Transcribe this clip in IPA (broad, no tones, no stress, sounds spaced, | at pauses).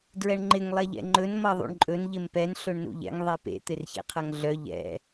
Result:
d ɹ ɛ ɳ ŋ͡ǃ ɪ ŋ lˠ ɛ ʎ ɛ̰ ŋ͡ǃ ɵ n m ʌ ðˤ ṵ ɳ ǃʼ ɵ n ʎ ɪ m p ɛ n ɬ ɵ ɳ n ṵ ʎ ɛ̰ ŋ ðˤ e p ḛ t̪ ɪ r ç ḛ qʰ ʌ ŋ ɮ œ ʎ ɛ̰